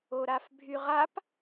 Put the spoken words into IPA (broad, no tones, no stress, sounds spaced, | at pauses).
o ɾ a f bʱ y ʁ a p